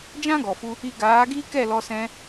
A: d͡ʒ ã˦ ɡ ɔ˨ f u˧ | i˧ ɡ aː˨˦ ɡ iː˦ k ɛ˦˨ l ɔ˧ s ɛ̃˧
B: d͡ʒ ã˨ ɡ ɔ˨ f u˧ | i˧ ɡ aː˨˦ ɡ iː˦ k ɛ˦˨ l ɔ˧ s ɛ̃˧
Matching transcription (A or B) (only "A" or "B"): A